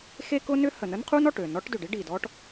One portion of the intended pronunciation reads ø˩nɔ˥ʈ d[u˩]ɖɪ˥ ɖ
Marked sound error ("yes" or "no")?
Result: yes